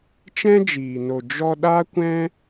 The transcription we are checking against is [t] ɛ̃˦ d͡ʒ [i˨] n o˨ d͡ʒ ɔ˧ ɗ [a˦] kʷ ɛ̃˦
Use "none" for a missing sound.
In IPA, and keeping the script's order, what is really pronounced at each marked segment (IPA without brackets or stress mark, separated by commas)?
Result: t͡ʃ, iː˨, a˦